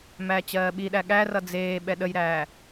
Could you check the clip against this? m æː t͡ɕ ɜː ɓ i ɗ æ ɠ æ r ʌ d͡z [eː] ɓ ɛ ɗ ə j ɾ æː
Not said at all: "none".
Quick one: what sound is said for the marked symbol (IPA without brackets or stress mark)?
eː